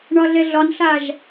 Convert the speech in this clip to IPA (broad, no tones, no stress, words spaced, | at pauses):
ɳɒɮɛɮɒnɬaʒ